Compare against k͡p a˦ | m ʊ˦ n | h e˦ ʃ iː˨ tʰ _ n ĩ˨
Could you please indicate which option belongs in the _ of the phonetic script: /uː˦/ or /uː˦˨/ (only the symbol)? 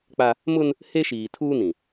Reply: uː˦